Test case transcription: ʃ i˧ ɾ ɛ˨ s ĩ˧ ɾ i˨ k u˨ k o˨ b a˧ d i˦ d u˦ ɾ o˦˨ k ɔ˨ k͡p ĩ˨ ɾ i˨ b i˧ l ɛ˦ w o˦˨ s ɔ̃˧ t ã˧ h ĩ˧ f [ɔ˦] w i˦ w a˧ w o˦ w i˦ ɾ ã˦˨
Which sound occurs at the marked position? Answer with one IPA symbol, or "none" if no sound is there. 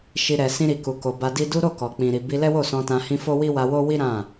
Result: o˦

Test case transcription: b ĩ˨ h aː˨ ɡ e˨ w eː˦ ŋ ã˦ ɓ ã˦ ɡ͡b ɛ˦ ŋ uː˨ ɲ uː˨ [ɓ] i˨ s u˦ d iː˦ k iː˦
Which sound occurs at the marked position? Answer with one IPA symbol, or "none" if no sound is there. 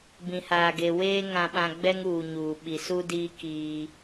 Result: ɓ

